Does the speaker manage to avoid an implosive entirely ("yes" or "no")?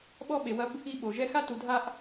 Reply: no